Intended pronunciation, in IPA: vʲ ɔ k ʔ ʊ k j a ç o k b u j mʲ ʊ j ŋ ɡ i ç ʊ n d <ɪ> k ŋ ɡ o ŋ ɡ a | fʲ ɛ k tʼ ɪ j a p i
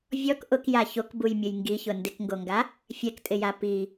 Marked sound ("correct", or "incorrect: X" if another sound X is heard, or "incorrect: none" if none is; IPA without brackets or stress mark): correct